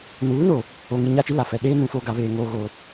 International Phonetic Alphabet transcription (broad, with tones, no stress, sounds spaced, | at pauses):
n uː˨˦ n o˨ | o˨ ŋ i˨ ɲ a˦˨ t͡ʃ i˦ l a˨ f ɛ˨ ɗ eː˦ n ũ˨ f o˨ ɡ a˨ β eː˨ ŋ oː˨ ɣ o˨